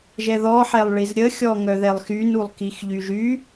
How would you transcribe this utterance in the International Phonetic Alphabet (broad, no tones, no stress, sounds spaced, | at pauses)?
ʒ ɛ ð ɔ ħ ɛ lˠ ɭ i z ɾʲ ə xʲ ɔ ŋ œ ð ɛ lˠ x y n u lˠ k i x ʎ y ʒ y